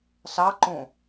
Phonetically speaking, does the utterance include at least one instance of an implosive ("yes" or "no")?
no